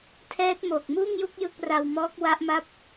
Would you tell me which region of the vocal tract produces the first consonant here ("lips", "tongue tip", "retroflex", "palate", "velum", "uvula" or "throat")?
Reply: tongue tip